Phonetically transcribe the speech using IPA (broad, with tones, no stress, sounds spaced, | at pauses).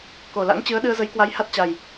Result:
k o˨˩ l a̰˧˥ ŋ t͡ɕ ɨ˨˦ ə̯ ɗ ɨ˧ ə̯ z ə˨˦ j k w a˨˦ j h a˦˥ t̚ t͡ɕ a˨˩ j